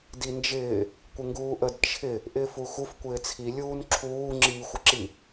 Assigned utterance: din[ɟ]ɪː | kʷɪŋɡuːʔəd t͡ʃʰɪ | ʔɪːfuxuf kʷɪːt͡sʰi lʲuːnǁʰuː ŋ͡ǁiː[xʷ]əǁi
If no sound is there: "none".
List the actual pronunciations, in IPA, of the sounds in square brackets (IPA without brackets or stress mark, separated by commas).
d͡ʒ, xʷ